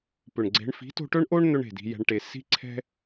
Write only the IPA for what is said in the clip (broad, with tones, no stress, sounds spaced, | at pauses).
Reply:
p ʏ˨ ɳ ɡ͡ǀ e̤˧ ɳ f i̤˨˦ t o̤˧ ʈ ɵ˦ ɳ ʔ o˦ ɳ n̪ ɵ˦ ɳ e̤˨ d i̤˧ j ɛ̤˧ ɳ ʈ e˧ s i̤˦ ǀʰ ɛ̤˦